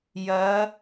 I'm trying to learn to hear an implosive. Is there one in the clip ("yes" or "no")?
no